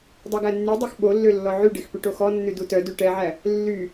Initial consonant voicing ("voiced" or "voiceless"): voiced